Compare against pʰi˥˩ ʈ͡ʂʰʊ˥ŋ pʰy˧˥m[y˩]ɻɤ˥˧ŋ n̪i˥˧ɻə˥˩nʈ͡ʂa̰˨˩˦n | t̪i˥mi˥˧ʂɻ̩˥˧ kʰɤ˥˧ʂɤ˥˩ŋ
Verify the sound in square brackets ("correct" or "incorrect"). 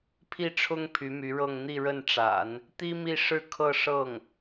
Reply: incorrect